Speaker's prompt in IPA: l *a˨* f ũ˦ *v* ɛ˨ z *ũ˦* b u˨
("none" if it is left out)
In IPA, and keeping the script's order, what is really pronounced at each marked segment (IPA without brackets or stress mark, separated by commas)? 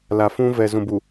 a˨, v, ũ˨